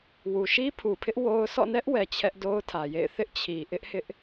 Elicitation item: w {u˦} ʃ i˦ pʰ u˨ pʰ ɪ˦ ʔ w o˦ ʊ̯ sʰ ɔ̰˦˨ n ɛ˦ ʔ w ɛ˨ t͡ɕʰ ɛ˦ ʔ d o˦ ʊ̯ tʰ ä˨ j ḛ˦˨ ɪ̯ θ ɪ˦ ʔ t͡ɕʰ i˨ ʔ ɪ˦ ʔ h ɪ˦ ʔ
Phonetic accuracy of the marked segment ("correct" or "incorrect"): incorrect